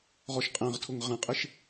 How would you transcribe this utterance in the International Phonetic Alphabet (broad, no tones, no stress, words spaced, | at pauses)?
ʁɔʃqʼæ̃ʁtʰʊŋ ʁæ̃qʼɪʃ